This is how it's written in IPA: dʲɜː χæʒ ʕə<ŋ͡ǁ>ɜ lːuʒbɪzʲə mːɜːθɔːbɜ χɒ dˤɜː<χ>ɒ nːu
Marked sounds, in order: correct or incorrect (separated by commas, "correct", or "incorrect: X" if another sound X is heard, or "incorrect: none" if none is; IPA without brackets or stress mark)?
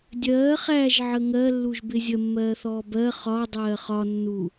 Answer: incorrect: ŋ, correct